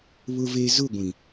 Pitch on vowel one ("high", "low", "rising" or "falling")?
low